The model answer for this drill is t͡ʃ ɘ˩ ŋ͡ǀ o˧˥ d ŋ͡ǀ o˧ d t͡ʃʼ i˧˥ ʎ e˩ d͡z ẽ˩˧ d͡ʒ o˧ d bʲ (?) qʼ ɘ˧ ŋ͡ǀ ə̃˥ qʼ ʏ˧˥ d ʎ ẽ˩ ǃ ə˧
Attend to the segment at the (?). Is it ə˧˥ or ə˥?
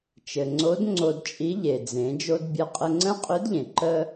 ə˧˥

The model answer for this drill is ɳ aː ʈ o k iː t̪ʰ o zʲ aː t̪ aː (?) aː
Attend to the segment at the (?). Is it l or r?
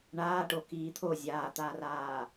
r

